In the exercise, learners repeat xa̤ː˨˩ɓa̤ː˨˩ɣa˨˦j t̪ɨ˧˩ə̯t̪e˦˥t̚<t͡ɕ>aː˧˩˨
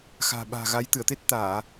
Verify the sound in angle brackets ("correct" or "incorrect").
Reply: incorrect